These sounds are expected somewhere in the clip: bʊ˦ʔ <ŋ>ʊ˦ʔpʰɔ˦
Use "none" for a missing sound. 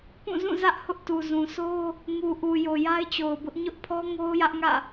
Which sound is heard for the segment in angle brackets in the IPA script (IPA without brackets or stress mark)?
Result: ɲ